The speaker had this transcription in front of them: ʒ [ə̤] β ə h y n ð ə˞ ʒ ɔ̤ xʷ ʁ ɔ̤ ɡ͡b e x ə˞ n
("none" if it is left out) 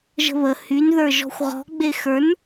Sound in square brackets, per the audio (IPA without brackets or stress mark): ə̤